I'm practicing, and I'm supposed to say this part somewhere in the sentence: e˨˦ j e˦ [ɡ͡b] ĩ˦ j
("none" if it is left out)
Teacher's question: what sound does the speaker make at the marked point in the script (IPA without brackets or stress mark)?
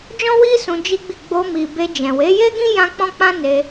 ɡ